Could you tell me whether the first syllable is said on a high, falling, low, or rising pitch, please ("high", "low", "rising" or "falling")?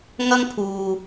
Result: high